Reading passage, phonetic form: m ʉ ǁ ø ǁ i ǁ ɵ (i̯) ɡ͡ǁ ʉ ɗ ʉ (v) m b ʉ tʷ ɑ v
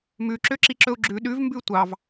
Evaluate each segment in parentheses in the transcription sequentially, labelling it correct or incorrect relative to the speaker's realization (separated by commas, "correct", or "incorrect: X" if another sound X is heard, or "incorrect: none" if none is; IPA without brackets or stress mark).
incorrect: u̯, correct